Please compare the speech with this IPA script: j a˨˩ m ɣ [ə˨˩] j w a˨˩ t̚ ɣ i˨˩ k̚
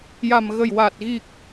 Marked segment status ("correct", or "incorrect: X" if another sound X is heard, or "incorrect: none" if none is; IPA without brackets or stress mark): correct